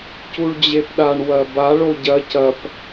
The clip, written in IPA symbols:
cuɭd͡ʑepɗaɳ wɐba ɭoɟɐ cɐp

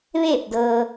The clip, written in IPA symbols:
ʋeː˧˩p̚dɤː˩

